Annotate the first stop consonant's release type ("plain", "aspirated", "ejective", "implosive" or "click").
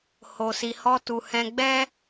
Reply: plain